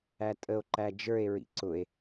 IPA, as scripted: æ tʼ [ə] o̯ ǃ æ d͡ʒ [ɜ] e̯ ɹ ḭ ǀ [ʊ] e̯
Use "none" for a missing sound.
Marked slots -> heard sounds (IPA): ə, ə˞, ʊ

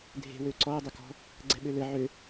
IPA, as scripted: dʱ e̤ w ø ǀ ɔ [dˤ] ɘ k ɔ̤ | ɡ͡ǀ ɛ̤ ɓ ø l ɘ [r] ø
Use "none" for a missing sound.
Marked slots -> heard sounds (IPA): dˤ, ʕ

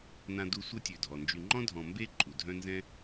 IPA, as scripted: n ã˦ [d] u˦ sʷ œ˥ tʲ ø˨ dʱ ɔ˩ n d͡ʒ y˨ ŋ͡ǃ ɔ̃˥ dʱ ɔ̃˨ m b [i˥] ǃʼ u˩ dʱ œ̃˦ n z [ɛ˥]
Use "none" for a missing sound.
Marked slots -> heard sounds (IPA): d, e˥, ɛ̃˥

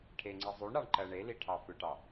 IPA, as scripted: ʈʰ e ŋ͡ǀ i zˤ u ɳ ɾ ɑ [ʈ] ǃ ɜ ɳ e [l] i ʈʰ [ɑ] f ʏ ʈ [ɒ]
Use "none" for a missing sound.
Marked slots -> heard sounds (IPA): ɳ, l, ɑ, ɑ

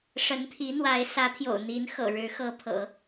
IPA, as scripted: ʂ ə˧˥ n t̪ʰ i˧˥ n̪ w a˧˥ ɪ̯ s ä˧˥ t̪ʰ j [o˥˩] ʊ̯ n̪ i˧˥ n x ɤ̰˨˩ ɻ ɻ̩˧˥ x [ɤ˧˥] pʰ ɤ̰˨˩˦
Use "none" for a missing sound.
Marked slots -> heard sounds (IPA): o̰˨˩, ɤ˧˥

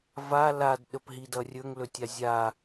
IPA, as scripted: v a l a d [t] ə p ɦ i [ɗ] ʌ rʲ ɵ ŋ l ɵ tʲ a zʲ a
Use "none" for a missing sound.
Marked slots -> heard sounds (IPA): ɗ, d

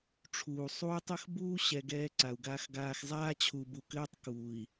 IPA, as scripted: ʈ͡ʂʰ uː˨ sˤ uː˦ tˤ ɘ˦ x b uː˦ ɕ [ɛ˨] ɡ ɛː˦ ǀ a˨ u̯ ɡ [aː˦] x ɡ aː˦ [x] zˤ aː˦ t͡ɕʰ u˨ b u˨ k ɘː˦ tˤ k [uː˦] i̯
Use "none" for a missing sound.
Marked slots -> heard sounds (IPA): ɛ˨, aː˦, x, uː˨

